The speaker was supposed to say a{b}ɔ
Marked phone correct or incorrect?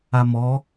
incorrect: m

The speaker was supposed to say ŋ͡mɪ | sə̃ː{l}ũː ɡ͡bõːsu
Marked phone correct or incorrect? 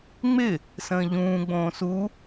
incorrect: ʎ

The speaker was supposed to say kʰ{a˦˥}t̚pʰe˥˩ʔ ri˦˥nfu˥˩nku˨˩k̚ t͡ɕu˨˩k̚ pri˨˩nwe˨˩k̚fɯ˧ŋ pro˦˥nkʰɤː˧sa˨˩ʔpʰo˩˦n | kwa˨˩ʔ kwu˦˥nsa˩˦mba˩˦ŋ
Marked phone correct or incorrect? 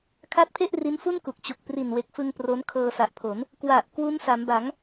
correct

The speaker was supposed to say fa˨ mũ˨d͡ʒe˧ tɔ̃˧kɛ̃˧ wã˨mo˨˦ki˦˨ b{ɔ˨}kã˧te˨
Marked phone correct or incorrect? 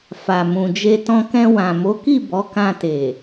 incorrect: ɔ˨˦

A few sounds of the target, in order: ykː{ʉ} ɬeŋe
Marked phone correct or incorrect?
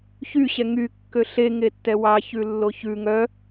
incorrect: ø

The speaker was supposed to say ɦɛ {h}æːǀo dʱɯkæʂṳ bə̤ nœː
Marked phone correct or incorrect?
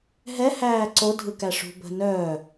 correct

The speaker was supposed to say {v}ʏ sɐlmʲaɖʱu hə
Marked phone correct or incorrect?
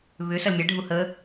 incorrect: β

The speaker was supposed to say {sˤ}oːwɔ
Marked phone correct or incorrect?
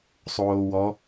correct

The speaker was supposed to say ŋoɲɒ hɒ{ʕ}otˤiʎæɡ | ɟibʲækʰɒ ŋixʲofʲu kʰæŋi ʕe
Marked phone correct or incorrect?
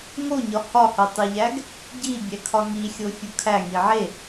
incorrect: h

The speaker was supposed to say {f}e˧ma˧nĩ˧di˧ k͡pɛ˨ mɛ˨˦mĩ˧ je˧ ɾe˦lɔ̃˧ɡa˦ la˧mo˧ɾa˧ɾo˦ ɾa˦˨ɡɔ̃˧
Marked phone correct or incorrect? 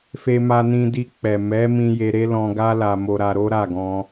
correct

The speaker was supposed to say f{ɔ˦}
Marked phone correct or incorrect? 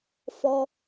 correct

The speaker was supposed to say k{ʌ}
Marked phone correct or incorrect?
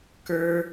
incorrect: ə˞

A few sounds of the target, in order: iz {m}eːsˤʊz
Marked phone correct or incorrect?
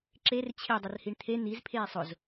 incorrect: pʰ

